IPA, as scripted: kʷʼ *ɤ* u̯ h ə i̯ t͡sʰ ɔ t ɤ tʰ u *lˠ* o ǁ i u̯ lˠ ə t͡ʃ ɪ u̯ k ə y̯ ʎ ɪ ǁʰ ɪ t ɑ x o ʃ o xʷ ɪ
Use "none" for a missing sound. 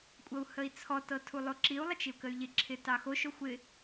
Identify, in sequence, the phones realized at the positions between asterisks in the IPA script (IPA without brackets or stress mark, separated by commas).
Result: ɤ, lˠ